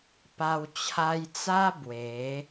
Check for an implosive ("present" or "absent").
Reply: absent